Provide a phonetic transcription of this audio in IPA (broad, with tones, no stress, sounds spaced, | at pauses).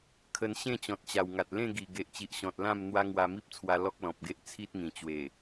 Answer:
kʰ ə˨˩ n ɕ ẽ˥˧ t͡ɕ ɔ̃˨ t̚ t͡ɕ a˨˩ w ŋ a˨ t̚ l ẽ˥˧ ɡ i˨˩ ɡ e˨ ʔ t͡ɕ i˨ ʔ ɕ ɔ̃˨ t̚ l ã˥˧ m n̪ w a˦ ŋ w a˧ m i˦ p̚ t͡sʰ w a˧ l ɔ˦ k̚ l ɔ̃˨ p̚ ɡ e˦ ʔ t͡sʰ i˦ t̚ ŋ ĩ˨˩ t͡ɕ w e˨˩